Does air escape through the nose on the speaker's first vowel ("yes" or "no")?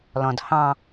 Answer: yes